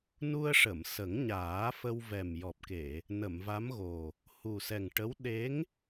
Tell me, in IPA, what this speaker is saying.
n u˧ ə̯ ʂ ə˨˩˨ m s ə˨˩˦ ŋ ɲ aː˨˩˦ f ə˧ w v ɛ˨˩ m j ɔ˨˩ p̚ k e˨˩˨ | n ə˨˩˨ m v a˧˥ m ɣ o˨˩ | h u˨˩ s ɛ˨˩ ŋ ʈ ə˧˥ w ɗ e˧˥ ŋ

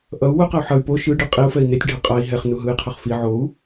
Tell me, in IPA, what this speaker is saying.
ʔ ʌ u̯ w u q a u̯ ħ ʌ y̯ p o ʃ ɯ ɖ ɯ qʼ i u̯ f ɛ i̯ n e tʲ ɖʱ ɛ qʼ a i̯ ɦ ɛ χ n u ɦ ɯ i̯ qʰ ʌ χ f i ʕ o u̯

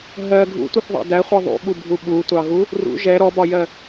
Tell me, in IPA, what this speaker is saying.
ɦ ɜ ɡʱ ṵ tʷ ɪ θ ðˤ ɑ̰ d æ χʷ ɜ ðˤ ṵ ɓ u bʱ u ɓ u tʷ ɑ ɣ u | r ṵ ʒ ɛ ɾ ɔ b ɒ j ɜ

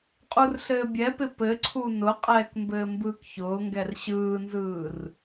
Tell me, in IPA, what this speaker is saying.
qʼ u r ɬ ɘː bʲ ɛ p ɪ p ɘ ǀʰ u n ʊ qʼ ɛː k m b ɘː m b ɯː k ç ʊː ŋ ɡ ɛ r ɕ ɯː n z ɯː r

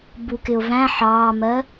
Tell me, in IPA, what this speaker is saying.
b u k ɪ ʊ̯ v æ̃ ħ ɑː m ɜ

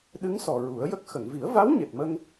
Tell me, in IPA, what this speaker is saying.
ɗ ɨ˧˥ ŋ s ɔ˨˩ ɹ u˨˩˦ ə̯ j ə˦˥ k̚ x ə˨˩˨ ŋ v i˨˩˦ ə̯ v a˧˥ w ɲ e˨˩ t̚ m ə˧ ŋ

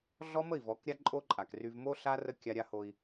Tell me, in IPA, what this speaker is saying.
ɮ ɔ˦ m ə˦˨ i̯ v ɔ˨˦ k ɾʲ a˦ ǃʼ o˦ ǃʼ a˨ k r y˦ v m o˦ ɬ a˦ r ə˦ kʲ a˦ ɾʲ a˦ h o˦ i̯

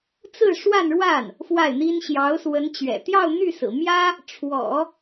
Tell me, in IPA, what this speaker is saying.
t͡s ɹ̩˥˧ ʂ w a˥˧ n ɻ w a˥˩ n | f w a˥˩ ɪ̯ n̪ i˥ n ɕ j ɑ˧˥ ʊ̯ s w ə˧˥ n t͡ɕ ɥ ɛ̰˨˩ t̪ j ɑ˥˧ ʊ̯ n̪ y˥˩ s ɹ̩˨˩ m j ä˥ | ʈ͡ʂʰ w ɔ̰˨˩˦

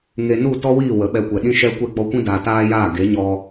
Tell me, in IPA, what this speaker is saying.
ŋ e˧ n u˦˨ t ɔ˦ w iː˦˨ w ə˨˦ ɓ ɛ˧ kʷ ɛ˨ ɗ ĩ˦ ʃ ɛ˦ kʷ ɛ˦ ɡ͡b ɔ˧ kʷ ĩ˦ d aː˨ t aː˦ j aː˦˨ ɡ e˨˦ ɲ ɔ˧

